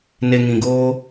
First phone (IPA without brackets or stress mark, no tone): n